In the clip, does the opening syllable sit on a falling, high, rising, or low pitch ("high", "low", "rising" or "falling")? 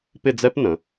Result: falling